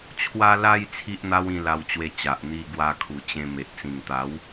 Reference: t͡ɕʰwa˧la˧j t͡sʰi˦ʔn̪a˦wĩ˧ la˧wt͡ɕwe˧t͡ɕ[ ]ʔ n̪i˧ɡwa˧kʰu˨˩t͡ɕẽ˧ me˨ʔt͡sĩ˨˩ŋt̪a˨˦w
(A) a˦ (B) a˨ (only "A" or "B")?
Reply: B